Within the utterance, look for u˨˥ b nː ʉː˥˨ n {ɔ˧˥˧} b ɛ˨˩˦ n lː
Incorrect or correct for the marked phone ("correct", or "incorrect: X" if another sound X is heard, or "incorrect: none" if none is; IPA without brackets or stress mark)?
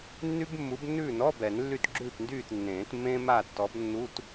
correct